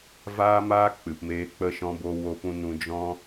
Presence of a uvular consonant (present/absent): absent